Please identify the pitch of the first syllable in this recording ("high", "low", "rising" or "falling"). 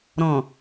low